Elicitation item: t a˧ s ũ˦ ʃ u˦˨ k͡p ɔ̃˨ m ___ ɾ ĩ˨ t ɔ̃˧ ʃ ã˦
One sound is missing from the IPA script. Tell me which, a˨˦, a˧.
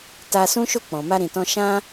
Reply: a˧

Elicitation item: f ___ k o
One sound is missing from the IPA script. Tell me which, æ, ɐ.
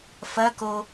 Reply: ɐ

